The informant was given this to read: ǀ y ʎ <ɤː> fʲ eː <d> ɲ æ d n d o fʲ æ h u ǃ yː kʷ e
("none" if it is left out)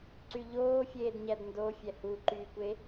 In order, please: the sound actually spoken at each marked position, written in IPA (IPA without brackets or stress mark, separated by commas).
oː, d